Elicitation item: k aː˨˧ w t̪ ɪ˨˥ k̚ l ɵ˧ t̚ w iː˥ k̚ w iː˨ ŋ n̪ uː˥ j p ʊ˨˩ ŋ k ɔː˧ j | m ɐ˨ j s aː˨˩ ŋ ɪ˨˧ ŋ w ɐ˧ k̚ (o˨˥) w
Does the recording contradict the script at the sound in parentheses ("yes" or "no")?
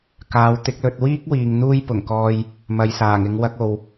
yes